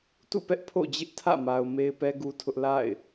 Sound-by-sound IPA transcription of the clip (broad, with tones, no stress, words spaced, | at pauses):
tṵ˦˨pɛ˦ʔ pʰo̰˦˨d͡ʑɪ˦ʔtʰä̰˦˨ma˨ʊ̯ me˦ɪ̯pɛ˦ɡu˦tʰʊ˦ʔ la̰˦˨ɪ̯